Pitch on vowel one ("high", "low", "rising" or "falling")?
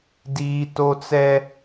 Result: high